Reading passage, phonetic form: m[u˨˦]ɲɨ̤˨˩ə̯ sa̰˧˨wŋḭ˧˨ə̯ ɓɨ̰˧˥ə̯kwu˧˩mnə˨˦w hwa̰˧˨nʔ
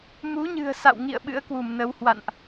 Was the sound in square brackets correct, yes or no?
yes